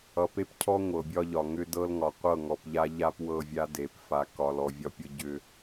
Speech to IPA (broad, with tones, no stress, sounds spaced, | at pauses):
ʌ˨ p e˦ p cʰ ɔ˦ ŋʷ ɤ˨ bʲ ɒ˦ ʎ ɒ˨ ŋ ʏ˦ d ɤ˦ l ŋ ɒ˨ qʷ ɤ˦˨ ŋ ɔ˨ p ʎ a˦ ʎ a˦ p w ɤ˦˨ vʲ a˦ d e˨ p f a˨ k ɒ˨ l ɔ˨ vʲ ɒ˦ pʲ ɤ˦ ɟ ʏ˦